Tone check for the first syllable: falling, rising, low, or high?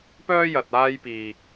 high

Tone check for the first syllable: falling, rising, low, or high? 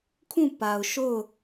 falling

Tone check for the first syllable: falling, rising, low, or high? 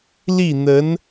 falling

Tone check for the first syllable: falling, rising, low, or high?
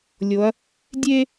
rising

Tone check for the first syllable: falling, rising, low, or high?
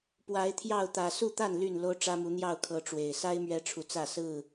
rising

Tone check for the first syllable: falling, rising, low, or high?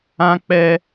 high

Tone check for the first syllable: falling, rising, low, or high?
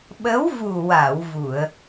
rising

